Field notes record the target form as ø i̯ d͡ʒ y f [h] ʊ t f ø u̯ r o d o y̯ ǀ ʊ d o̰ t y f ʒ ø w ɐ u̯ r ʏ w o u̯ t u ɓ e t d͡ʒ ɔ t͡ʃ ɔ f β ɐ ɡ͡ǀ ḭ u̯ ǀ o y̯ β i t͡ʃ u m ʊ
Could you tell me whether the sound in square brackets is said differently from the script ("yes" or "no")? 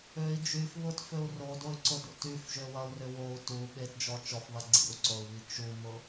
yes